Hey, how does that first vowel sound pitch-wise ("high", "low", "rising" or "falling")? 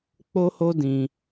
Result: high